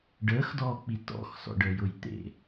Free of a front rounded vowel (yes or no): yes